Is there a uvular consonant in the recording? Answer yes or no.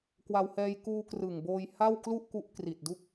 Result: no